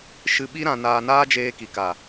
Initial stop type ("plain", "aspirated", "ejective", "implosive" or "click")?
implosive